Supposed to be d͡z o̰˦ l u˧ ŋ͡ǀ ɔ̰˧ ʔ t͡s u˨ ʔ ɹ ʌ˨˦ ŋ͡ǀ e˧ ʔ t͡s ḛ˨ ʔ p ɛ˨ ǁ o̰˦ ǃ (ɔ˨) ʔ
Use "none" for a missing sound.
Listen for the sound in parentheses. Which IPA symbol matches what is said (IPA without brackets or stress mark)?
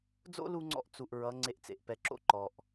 ɔ˨